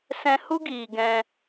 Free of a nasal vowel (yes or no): no